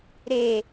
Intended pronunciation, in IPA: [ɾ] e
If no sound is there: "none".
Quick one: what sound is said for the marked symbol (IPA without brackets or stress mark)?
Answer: ɾ